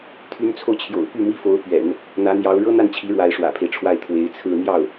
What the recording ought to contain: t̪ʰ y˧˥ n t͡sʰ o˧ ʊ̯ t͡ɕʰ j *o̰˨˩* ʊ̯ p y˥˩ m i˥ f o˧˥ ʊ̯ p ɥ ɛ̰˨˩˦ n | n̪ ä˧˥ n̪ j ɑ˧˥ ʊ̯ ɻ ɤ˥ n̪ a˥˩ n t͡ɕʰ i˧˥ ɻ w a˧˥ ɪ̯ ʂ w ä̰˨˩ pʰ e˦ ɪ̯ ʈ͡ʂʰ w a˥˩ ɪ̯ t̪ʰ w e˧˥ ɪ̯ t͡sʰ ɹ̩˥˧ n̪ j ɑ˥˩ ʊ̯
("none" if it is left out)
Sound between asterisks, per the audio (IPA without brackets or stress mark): o̰˨˩